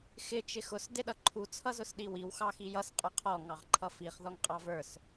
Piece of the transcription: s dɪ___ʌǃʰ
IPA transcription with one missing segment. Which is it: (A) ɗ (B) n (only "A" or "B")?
A